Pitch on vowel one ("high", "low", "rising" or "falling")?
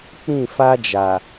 falling